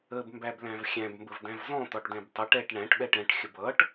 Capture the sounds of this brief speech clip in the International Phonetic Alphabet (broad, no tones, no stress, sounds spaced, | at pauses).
ə b m b æ b l æ̃ v xʲ æ̃ b m b ə v d æ̃ v z ɔ̃ t̪ ɒ ʈ d ɛ̃ b tˤ ʌ ʈ ɛ ʈ ɳ æ̃ ʈ ɓ ɛ ʈ ɛ̃ ʈ xʲ ə b ʌ ʈ